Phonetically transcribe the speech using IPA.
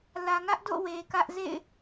l ä˨ ŋ ä˦ ʔ d o̰˦˨ w e˨ k ä˦ ʔ z ḛ˦˨ ɪ̯

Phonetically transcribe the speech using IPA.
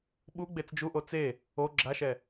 ɓ u ɡ͡b e t͡s d͡ʒ u ʔ o t͡s e | o ɡ͡ǁ a ʃ ɛ

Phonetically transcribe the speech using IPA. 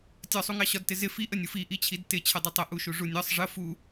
tʲ ɒ sˤ u ŋ ɑ ɕ ɒ d t ɪ z ɪ f i ʔ ə nʲ u f i ʔ i t͡ɕʰ i d t ɪ t͡ɕʰ ə dˤ ɪ tˤ ə ʔ u ʃ u ʐ u nʲ ɒ sˤ ʐ ə f u

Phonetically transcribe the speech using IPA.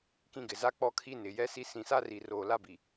k ĩ˦ ɡ ɪ˨ z a˦ k͡p ɔ˦ kʰ i˦ n ɪ˨ j ɛ˦ s i˦ s ĩ˨ s a˦ r i˨ r oː˨ l a˦ b i˨

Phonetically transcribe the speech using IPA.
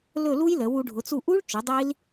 l ɵ˦˨ l u˦˥ j l ə˩˧ w u˩˧ ɖʱ ʊ˩˧ t͡s u˦˨ ʔ u˦˥ ɭ t͡ʃ ɵ˩˧ dˤ i˦˥ l

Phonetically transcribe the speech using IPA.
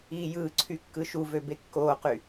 iː j ɯː ǀʰ y kː ɯ ʃ u v ø b e kː oː q y

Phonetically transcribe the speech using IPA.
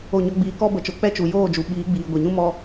o˦˨ ɲ ɔ˦ ɡ͡b iː˧ k ɔ˦ b ə˨˦ t͡ʃ o˨˦ k͡p ɛ˦ t͡ʃ u˨ j oː˦˨ d͡ʒ u˨ ɓ iː˨˦ ɡ͡b iː˨ ɡʷ e˨ ɲ ũ˦ m ɔ˧

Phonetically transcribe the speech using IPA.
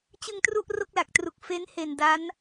t͡ɕ ɯ˧ ŋ t r u˥˩ ʔ r o˥˩ k̚ l a˨˩ k̚ t r u˨˩ k̚ f e˦˥ n h e˨˩ n d a˦˥ n

